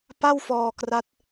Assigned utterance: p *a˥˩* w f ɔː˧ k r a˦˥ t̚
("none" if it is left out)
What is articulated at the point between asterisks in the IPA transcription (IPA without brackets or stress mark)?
a˥˩